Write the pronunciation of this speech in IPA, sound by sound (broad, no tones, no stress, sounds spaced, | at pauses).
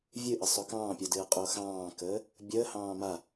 vʲ ɨ ʔ ə sˤ o k ɑ̃ː pʲ o d ɨː qʼ o x ɑ̃ː k əː | bʲ əː h ɑ̃ː m a